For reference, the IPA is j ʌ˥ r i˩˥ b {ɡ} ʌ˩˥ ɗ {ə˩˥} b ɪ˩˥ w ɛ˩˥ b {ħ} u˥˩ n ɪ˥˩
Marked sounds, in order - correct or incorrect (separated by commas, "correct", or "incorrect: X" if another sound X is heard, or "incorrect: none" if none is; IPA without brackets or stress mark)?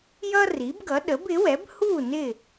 correct, correct, incorrect: h